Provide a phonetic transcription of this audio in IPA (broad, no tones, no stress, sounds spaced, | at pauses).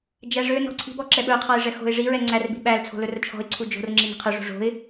d͡ʒ æ ʐ ø n ɔ̤ ǀʰ i̤ b ɔ ǁ ɛ ɓ ɵ ʊ̯ qʰ ɑ ɪ̯ ʐ ɛ x o̤ ɪ̯ ʐ i ɹ ɛ ŋ͡ǀ æ r b i̤ ɓ æ l t͡sʰ o̤ l ɵ r t͡ʃʰ ɔ̤ ɪ̯ ǀʰ u d͡ʒ o̤ r ŋ͡ǁ i n i̤ qʰ ø ʐ o̤ ʐ o̤ ɪ̯